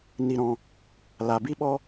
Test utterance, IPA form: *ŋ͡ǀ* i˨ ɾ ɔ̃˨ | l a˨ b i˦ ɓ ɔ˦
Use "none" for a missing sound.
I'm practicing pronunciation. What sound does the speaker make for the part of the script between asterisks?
n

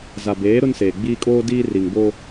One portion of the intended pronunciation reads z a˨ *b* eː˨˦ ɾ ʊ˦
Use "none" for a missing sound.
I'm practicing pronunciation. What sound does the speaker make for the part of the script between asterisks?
b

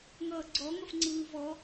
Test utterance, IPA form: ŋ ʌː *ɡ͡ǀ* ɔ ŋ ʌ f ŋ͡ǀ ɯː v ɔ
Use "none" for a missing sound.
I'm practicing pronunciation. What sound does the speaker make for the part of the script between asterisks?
ɡ͡ǀ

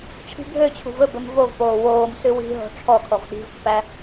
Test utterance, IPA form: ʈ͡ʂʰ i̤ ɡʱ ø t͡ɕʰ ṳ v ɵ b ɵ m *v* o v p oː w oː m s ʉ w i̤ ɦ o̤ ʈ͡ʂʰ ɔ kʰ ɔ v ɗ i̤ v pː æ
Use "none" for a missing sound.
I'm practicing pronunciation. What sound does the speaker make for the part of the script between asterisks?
v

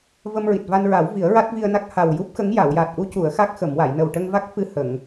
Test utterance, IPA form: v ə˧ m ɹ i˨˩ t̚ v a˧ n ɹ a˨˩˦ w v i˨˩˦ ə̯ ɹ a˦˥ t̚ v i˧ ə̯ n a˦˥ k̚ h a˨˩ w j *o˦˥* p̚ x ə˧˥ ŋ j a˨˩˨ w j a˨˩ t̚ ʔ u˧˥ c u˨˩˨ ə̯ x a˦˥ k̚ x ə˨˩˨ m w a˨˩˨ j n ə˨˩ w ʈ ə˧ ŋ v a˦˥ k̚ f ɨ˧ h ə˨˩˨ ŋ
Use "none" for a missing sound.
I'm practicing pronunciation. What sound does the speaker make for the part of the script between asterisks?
u˦˥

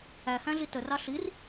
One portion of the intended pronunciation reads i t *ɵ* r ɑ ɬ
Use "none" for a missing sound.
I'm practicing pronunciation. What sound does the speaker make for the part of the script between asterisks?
ə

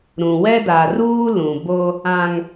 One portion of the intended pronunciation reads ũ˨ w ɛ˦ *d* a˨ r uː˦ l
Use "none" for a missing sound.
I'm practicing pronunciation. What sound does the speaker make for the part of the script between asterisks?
d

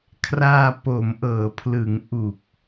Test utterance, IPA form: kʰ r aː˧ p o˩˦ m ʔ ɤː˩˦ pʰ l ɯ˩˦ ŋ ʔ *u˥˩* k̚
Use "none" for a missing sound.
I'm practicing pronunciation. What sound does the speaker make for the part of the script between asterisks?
u˨˩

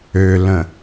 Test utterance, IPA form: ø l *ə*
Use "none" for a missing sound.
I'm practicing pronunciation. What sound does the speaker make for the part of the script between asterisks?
ə̃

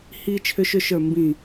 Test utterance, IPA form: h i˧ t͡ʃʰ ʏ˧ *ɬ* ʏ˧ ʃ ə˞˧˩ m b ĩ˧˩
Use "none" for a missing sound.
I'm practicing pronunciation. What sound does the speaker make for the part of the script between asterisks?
ʃ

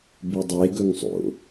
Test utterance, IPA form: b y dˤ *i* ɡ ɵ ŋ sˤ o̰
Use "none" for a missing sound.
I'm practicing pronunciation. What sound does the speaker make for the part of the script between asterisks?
e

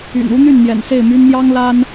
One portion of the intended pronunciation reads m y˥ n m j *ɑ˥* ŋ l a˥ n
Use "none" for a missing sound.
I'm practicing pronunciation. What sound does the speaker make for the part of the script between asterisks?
ɑ˥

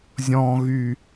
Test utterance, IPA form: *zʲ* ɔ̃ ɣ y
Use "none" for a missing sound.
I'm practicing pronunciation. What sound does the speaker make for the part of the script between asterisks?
zʲ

